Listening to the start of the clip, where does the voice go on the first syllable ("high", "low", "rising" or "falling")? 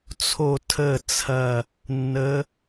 falling